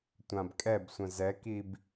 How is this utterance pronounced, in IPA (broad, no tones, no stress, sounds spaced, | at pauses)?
tʷ ã b kʼ ɛ b sʷ ə̃ z ɛ k i b